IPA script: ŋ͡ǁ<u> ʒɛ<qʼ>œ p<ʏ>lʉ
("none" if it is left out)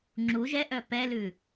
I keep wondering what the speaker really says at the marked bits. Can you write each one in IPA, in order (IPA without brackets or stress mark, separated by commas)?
u, ʔ, ɛ